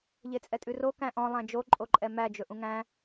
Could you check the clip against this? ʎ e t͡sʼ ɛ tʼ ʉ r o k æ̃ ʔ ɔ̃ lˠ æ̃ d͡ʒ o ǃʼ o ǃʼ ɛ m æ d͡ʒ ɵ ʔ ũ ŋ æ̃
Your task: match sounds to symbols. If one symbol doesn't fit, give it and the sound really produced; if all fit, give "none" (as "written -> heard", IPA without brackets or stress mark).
none